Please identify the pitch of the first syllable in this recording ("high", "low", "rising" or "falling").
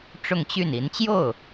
falling